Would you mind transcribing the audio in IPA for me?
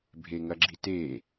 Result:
bʱeŋɐɡ͡ǁite

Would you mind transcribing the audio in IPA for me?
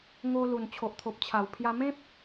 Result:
ŋo˧lu˨˩n t͡ɕʰo˨ʔt̪ʰo˨p̚t͡ɕʰa˨˩wpʰja˧ mẽ˦p̚

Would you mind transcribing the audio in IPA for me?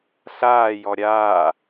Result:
ɬaːjɔ ɾʲaː

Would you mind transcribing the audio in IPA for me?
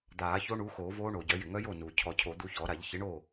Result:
d̪aː˨˩˦ço˦˥ ɳuː˨˥xoː˨˩˦ voː˦˥ɳoː˩ɟœ˨˩˦ jɪ˩ŋœ˦˥jo˥˩ nuː˩ cʰɔ˨˩˦cʰo˨˩˦ d̪u˨˥çɔ˨˩˦ɾa˨˩˦ʎ çɪ˨˥ɳoː˥˩

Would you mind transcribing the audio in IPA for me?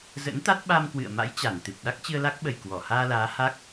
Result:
zə̰˧˥nt̪a˦˥t̚ ɓa˧mkwɨ̰˧˨ə̯ma̰˧˥j t͡ɕa˧˩nt̪ɨ˨˩p̚ ɗa˦˥k̚t͡ɕɨ˧ə̯la˦˥k̚ɓə˨˩j kwɔ˧˩ haː˧laː˨˦ ha˦˥k̚

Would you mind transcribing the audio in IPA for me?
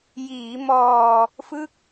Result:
jiː˩˦mɔː˧ | fɯ˦˥k̚

